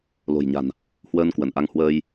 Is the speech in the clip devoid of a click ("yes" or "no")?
yes